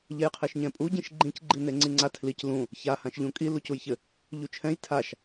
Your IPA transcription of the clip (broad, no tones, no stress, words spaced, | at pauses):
ʎɛjqʰeʃɲɛ̃pʼu ɟĩʃɡ͡ǃĩc ɡ͡ǃineŋ͡ǀiŋ͡ǀa tʰlic lũ | ça hãʃʎũkʼi lucujçɘ | ʎut͡ʃʰɛ̃j tʰaʃ